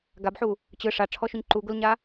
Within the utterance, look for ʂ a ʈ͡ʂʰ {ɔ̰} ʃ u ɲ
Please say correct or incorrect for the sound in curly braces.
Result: incorrect